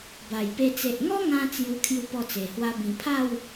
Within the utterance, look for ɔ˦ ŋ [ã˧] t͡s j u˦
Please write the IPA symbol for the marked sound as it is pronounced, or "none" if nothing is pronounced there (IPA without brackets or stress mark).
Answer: ã˧